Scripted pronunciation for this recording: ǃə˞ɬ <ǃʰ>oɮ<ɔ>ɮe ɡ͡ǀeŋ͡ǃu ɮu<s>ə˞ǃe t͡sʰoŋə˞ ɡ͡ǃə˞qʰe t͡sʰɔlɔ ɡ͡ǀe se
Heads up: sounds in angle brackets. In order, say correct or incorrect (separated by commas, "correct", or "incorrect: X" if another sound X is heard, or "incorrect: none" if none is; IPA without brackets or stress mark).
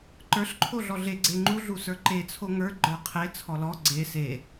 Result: correct, correct, correct